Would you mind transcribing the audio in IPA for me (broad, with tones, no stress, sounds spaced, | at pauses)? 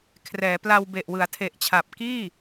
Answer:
kʰ r ɛː˩˦ p l a˧ w b e˨˩ ʔ w ɯ˩˦ a̯ tʰ e˨˩ ʔ t͡ɕʰ a˨˩ p̚ k iː˥˩